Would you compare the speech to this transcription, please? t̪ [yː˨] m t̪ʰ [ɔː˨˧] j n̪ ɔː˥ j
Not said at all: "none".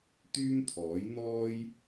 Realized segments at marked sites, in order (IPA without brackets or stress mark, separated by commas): yː˥, ɔː˨˥